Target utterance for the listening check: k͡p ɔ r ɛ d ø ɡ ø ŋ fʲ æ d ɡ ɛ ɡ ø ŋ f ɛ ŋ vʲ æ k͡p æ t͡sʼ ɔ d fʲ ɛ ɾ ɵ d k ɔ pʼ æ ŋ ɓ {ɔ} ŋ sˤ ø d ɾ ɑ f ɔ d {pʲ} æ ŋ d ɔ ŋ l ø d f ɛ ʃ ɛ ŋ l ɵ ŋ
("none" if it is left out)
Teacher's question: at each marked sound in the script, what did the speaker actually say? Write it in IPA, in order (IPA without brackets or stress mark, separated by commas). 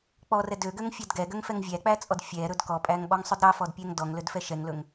ɔ, pʲ